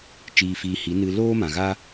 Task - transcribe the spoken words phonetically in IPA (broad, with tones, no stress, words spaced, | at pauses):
t͡ʃiː˧fiː˧hi˨˦ nɨ˧loː˦ mã˨ɣa˦